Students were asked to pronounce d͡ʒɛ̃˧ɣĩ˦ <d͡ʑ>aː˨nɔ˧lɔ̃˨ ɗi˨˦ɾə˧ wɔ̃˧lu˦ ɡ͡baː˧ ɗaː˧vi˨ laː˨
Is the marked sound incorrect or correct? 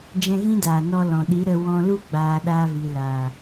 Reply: incorrect: d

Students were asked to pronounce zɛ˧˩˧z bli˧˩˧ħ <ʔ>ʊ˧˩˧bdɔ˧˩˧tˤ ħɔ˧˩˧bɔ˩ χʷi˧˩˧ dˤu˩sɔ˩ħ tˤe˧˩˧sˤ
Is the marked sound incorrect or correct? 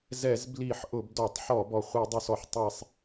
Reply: correct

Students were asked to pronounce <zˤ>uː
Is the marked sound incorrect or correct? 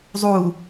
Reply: correct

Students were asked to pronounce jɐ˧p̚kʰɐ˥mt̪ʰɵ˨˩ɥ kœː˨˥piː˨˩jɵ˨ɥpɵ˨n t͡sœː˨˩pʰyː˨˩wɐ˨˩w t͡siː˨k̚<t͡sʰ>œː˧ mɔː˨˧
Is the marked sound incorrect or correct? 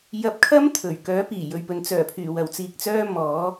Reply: incorrect: t͡s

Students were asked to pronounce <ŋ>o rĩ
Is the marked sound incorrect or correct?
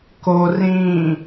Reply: incorrect: k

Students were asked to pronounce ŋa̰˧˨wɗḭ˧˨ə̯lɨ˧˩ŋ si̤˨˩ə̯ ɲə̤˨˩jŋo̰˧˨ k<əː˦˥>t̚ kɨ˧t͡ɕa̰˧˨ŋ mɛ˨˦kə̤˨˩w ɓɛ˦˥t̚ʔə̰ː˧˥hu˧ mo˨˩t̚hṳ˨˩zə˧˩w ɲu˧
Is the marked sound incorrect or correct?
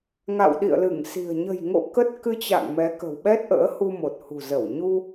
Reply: incorrect: ə˦˥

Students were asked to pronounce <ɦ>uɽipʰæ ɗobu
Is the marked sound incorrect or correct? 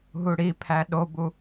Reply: correct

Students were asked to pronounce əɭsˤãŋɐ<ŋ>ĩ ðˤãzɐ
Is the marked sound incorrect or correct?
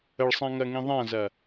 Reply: correct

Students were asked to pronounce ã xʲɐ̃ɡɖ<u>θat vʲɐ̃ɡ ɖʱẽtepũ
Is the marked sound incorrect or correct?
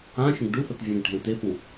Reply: correct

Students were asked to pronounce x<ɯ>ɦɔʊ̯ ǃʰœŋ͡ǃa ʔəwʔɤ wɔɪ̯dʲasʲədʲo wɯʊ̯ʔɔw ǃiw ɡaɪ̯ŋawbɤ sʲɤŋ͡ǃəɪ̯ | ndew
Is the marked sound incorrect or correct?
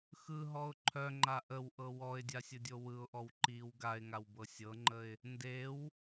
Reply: correct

